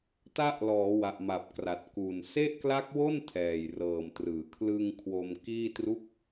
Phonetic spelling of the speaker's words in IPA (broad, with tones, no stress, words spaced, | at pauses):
ta˦˥ʔlɔː˩˦ wa˨˩ʔma˨˩p̚kra˨˩t̚ ku˨˩n se˥˩ʔkla˦˥k̚wo˥˩n tʰɛː˨˩jrɤː˨˩mtrɯː˩˦ kʰlɯ˧ŋ kʰwo˧m kiː˥˩tru˥˩k̚